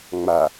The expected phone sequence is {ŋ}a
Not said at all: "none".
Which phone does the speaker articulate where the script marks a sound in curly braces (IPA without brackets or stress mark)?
ŋ͡m